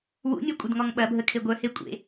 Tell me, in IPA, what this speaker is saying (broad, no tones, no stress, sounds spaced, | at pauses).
w ṵ nʲ ɐ kʷʼ ə d ŋ ɔ ŋ ɓ ɐ bʱ ə kʰ e ɡʷ œ h e kʷʼ ḛ